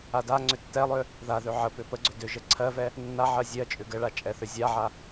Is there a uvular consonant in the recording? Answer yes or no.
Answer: no